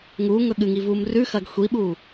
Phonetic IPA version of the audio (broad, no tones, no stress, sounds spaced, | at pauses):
ŋ uː ŋ ɵ ɠ ɨ ŋ i v uː m r ʉ x ɐː ɡ xʷ i ɓ uː